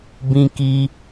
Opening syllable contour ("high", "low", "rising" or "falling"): high